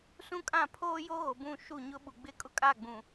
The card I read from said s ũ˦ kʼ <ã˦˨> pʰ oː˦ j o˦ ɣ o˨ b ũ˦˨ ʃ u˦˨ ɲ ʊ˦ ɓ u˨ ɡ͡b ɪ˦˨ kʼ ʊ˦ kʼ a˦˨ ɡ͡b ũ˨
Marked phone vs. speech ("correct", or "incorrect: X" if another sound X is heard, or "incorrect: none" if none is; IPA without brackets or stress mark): correct